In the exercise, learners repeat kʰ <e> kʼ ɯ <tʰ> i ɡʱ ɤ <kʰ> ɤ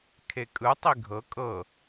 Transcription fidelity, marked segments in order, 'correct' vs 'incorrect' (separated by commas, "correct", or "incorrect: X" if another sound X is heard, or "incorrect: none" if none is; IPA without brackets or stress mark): correct, incorrect: tˤ, incorrect: kʼ